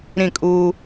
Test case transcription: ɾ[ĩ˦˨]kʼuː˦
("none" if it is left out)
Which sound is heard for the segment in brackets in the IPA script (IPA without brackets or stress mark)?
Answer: ĩ˦˨